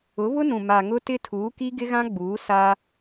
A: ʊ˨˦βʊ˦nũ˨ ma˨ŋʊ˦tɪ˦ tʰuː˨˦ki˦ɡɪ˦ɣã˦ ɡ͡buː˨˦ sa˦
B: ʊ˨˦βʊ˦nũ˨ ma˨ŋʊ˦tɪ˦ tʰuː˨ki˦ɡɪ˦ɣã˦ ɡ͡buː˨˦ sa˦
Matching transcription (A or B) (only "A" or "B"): A